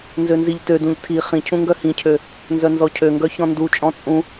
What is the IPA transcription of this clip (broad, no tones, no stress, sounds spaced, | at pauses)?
n z ø n z i ʎ t ø d ũ ʎ tʰ i χ ĩ cʰ ũ ŋ ɡ œ h ĩ cʰ ø | n z œ n z ɔ cʰ ø ŋ ɡ œ ç ɔ̃ n d u t͡ʃʼ ɔ̃ t͡sʼ ũ